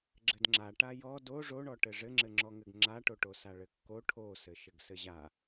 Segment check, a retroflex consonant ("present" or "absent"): present